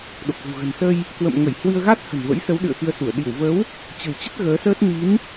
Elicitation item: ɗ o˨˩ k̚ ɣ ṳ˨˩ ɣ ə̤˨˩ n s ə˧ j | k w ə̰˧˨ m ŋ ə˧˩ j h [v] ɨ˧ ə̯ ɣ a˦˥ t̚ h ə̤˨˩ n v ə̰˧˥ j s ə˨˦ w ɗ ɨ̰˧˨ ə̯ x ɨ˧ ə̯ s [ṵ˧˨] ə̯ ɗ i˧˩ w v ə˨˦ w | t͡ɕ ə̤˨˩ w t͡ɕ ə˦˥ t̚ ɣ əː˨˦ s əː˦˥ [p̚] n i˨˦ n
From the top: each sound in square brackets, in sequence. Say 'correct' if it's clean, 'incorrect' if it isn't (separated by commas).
incorrect, incorrect, incorrect